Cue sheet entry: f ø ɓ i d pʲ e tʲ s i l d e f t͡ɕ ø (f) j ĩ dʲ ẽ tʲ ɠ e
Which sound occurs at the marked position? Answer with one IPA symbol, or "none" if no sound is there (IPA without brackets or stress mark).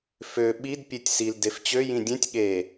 none